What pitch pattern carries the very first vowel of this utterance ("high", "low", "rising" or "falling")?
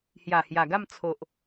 low